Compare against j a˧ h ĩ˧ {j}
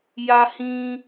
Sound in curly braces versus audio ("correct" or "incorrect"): incorrect